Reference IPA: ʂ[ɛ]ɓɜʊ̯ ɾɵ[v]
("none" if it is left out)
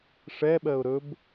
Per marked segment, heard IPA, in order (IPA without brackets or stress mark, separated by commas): ɛ, b